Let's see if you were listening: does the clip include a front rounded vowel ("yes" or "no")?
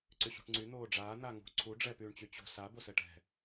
yes